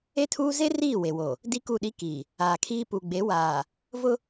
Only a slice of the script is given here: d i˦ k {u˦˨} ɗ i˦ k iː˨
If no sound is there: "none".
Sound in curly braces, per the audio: u˦˨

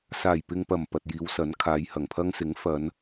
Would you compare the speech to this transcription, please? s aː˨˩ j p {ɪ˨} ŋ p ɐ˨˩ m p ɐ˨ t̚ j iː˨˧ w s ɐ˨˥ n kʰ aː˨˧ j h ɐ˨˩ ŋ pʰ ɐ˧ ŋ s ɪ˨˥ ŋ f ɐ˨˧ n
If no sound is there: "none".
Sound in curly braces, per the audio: ɪ˨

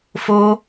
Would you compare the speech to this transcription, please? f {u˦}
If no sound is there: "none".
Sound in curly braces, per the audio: o˦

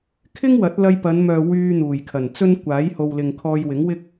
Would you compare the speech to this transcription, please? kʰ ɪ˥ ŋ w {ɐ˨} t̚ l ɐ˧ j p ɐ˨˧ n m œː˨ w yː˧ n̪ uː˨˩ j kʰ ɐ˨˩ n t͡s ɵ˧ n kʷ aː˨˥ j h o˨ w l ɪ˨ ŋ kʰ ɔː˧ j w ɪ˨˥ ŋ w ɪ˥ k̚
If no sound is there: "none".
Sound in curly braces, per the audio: ɐ˨˥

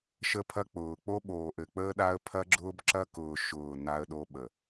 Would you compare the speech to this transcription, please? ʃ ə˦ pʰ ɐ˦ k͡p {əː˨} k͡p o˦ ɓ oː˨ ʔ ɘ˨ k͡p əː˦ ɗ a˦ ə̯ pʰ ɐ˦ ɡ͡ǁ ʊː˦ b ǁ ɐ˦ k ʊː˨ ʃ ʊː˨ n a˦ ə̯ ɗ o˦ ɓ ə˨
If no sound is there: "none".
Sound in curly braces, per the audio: ʊː˨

